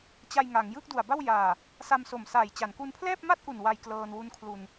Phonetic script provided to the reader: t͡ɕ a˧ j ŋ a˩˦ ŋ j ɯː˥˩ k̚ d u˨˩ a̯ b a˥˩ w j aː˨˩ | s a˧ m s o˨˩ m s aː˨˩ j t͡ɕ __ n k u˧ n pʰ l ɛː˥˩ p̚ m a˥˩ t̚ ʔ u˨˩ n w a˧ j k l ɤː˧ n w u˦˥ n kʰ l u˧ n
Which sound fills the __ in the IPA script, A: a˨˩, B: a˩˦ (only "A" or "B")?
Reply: B